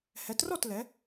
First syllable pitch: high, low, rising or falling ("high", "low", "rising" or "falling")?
rising